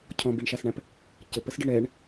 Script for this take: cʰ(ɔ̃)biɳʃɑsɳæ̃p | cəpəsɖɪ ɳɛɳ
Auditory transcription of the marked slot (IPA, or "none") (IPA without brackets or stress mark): ɔ̃